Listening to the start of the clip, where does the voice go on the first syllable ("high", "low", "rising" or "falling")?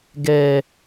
low